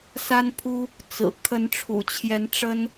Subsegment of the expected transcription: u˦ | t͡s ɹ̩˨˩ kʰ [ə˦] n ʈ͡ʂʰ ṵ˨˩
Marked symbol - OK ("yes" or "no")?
no